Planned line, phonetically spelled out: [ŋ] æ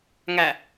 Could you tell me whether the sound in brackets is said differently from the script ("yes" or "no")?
no